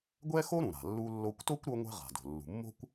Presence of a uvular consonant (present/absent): present